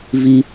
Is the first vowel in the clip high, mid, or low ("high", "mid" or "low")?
high